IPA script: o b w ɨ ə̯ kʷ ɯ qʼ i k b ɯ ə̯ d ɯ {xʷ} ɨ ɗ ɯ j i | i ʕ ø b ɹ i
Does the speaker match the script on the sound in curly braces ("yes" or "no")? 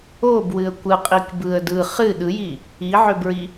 no